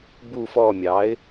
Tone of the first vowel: falling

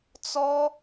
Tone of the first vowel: high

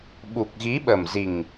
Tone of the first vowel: low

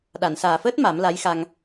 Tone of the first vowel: low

